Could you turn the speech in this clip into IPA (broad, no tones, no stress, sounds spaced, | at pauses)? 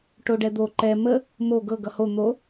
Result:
ʈ o ɖ ɛ d̪ o ǃ ɛ m ə | m o ɡ ɤ ɡ ʌ h o n̪ o